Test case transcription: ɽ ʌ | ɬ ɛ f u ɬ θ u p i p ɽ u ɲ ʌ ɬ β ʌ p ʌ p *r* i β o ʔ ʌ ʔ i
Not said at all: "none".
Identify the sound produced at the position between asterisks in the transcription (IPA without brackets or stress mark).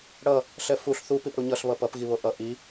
ɣ